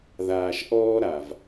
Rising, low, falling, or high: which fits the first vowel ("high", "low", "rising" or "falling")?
low